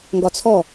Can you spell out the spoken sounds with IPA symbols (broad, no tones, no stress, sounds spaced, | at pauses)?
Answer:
ŋ ɡ ɒ t͡sʰ ɔ